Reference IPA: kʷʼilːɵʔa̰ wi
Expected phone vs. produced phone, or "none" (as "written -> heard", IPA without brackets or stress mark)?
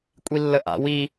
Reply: ɵ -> ə